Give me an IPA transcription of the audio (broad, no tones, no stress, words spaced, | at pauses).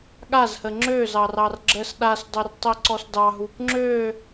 ɠazhə ŋ͡ǁøzɑ rɑrɡ͡ǁəs ɗasdˤørtˤiǀɔs dɑɦup ŋ͡ǁø